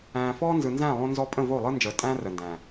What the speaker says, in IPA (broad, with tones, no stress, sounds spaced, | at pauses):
æ̃ː˨ f ɔː˦ n z ɯ˨ n z æ̃ː˦˨ lˠ õ˦ n z ɔ˦ pʼ ə̃˦˨ v o˦˨ lˠ ɯ˦ n d͡ʒ əː˨ tʼ æ̃ː˦ r ə˨ n d æ̃ː˨